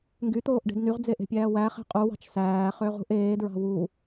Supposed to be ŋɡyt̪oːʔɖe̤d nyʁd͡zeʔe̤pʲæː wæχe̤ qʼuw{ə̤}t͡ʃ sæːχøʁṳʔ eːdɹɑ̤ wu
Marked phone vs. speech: incorrect: ɑ̤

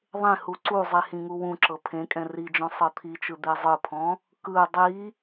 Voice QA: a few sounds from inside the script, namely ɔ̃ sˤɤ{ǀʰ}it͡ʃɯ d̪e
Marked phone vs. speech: incorrect: t̪ʰ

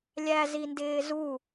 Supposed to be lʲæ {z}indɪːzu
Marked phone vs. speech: correct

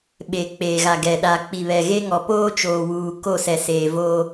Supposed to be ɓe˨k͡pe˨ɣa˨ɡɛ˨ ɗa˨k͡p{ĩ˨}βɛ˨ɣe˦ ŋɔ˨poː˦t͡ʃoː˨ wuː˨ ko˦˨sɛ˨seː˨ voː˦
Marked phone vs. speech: incorrect: i˨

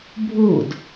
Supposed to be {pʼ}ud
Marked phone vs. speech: incorrect: bʱ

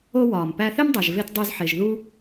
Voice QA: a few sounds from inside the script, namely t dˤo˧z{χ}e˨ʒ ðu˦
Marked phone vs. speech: incorrect: ħ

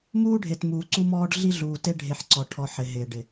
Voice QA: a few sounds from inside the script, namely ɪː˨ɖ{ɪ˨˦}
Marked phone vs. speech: incorrect: ɪ˨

